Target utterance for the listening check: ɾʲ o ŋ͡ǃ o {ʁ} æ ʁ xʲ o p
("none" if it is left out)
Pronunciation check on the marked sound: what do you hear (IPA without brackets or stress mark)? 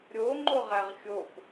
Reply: ʁ